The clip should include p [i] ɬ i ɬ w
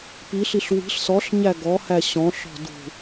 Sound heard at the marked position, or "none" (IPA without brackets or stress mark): i